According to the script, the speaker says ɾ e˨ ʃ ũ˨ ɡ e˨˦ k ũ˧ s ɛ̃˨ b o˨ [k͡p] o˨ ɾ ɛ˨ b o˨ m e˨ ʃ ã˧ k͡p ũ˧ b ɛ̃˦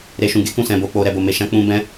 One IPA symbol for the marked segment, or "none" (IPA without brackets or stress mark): k͡p